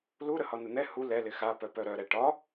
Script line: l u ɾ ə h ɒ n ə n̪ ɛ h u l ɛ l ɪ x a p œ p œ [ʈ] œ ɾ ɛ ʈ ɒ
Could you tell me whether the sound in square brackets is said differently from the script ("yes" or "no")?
yes